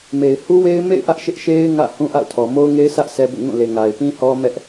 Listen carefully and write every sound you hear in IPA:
m e˨ ɪ̯ h u˦ w e˦ ɪ̯ m ḛ˦˨ ɪ̯ ʔ ä˦ ʔ ʃ ɪ˦ ʔ ʃ e˦ ɪ̯ ŋ ä̰˦˨ h ũ˦ ʔ a̰˦˨ ʊ̯ tʰ ɔ˨ m o˦ ʊ̯ ŋ e˦ ɪ̯ s ä˦ ʔ sʰ ɛ˦ b ṵ˦˨ ŋ ũ˦˨ l e˨ ŋ a˨ ɪ̯ p ĩ˦ h ɔ˦ m ɛ˦ ʔ

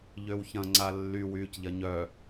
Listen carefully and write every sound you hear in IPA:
ʎ ø w ç ɐ̃ ŋ͡ǀ a lː y w yː c ʎ ɐ ɲ œ

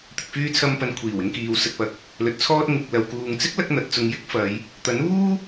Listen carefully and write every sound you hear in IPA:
t̪ ɪ˨ k̚ f yː˧ t͡sʰ ɐ˧ m p ɐ˨˧ n kʷʰ iː˨˩ w ɪ˧ ŋ k iː˨ w s ɐ˨ t̚ p ɐ˨ k̚ | l ɵ˨ t̚ t͡sʰ ɔː˧ t̚ ŋ ɪ˨ k̚ l ɐ˨ w k uː˨ ŋ t͡s ɪ˥ k̚ l ɐ˥ k̚ n̪ ɐ˨˥ t̚ t͡s ʊ˧ ŋ j ɪ˥ k̚ f ɐ˨˧ j | t̪ ɐ˨˥ n uː˥

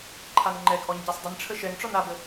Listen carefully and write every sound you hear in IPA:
ǃʰ a n ŋ͡ǃ ɛ ɡ ʔ ɔ ɲ ɟ a sˤ dˤ ə n ʈ͡ʂʰ ə ʃ ɛ ŋ ʈ͡ʂ ɔ n a b ə

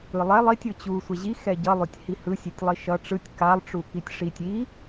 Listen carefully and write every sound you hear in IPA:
ɯ lˠ ɛ lˠ i tʲ ɯ t͡ɕ u sʷ ɛ ʑ i x ɛ ɟ ʌ lˠ o tʲ h i h ɯ sʲ e tʲ lˠ i ʃ ʌ ʈ͡ʂ ɯ tʲ k a lˠ ʈ͡ʂ u k i tʲ ʂ i tʲ i

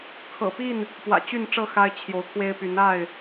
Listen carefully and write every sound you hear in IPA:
kʰ ɤ̰˨˩ p i˥˨ n | p w ä̰˨˩ t͡ɕ y˥˨ n ʈ͡ʂ ɤ˥˨ x a˦ ɪ̯ t͡ɕʰ j o˨˦ ʊ̯ kʰ w e˦ ɪ̯ p y˨˦ n a˥˨ ɪ̯

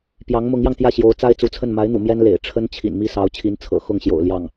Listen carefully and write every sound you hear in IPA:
p j ɑ˧˥ ŋ m ʊ˧˥ ŋ j ɑ˧ ŋ t̪ j ä˥˩ ɕ j o˧˥ ʊ̯ t͡s a˥ ɪ̯ t͡s u˧˥ t͡sʰ ə˥˩ n m a˧˥ ɪ̯ n̪ ṵ˨˩ m j ɛ˥ n l ḛ˨˩ ɪ̯ ʈ͡ʂʰ ə˥ n t͡ɕʰ ḭ˨˩ n m i˥˩ s ɑ˧˥ ʊ̯ t͡ɕʰ i˧˥ n t͡sʰ ɤ̰˨˩ x ʊ˥˩ ŋ ɕ j o̰˨˩ ʊ̯ l j ɑ˥˩ ŋ

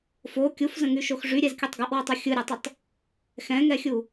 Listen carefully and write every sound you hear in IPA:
f o kʲ u f z ə̃ ŋ y ʃ o x ʐ y ɾʲ ɛ z kʲ ʌ tˤ ɡ ʌ ʔ w y tˤ o xʲ ɯ ɾʲ ɛ tˤ ə tˤ | x ɛ̃ ŋ ɛ xʲ u

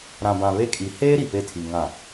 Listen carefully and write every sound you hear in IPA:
ɾ ã˨ b ã˨ β e˦ kʼ i˨ h eː˦ ɾ i˨ p e˦˨ tʰ i˨ ŋ ã˨

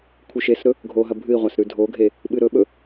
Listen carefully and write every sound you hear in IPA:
kʷʰ ɨ ʃ e s ɾ ɵ | ɡʱ o ɦ ɐ bʱ ɨ i̯ ʁʷ a s ɾ ʉ dʱ o ɡʱ e | ɓ ɨ ɾ ɵ ɓ ɵ

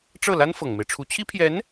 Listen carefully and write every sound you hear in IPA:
ʈ͡ʂ ɤ˥˩ l a˥ n f ɤ˨˩ ŋ m e˦ ɪ̯ ʈ͡ʂʰ u˧˥ t͡ɕʰ i˥ pʰ j ɛ˧˥ n

